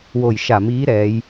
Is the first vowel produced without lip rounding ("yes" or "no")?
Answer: no